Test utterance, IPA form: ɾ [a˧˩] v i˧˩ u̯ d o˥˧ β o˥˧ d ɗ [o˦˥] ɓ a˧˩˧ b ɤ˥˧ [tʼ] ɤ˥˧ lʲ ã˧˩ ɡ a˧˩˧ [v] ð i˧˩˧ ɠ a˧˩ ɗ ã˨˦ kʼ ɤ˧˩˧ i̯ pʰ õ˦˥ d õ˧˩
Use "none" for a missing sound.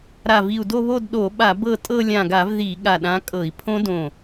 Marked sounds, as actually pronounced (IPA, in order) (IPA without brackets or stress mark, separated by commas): a˧˩, o˧˩˧, tʼ, v